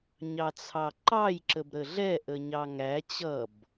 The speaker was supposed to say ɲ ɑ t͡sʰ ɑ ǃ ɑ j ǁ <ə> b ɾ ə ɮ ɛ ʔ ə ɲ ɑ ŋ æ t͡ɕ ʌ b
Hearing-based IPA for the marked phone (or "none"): ə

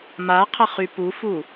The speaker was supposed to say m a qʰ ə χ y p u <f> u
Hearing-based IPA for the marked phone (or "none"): f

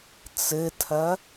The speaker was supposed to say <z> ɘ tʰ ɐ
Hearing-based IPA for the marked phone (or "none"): t͡s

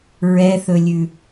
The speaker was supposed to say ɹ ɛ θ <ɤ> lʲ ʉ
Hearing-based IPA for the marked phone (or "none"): ɵ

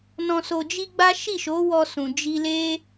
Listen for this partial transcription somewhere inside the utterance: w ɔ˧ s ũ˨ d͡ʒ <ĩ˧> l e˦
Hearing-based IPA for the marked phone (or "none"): i˧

